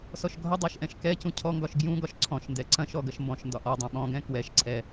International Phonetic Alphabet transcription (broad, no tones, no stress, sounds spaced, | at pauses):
s ɔ ʃ ɡʱ ʌ dˤ ɤ ʃ ʔ ɛ̃ ʃ k ɛ c ũ cʰ ɔ ŋ ɡ ɒ ʃ ɡ j ũ ɡ ɒ ʃ ǀʰ ɔ̃ ʃ n d ɛ ǀ ɐ̃ ʃ ɔ ɡ ɐ ʃ m b ɔ̃ ʃ n d ɒ ʔ ɔ dˤ ɐ̃ ɓ ɔ̃ ɡ ɛ̃ k w ɛ ʃ ǀʰ ɛ